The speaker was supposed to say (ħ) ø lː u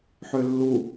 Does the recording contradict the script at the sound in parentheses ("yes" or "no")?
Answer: no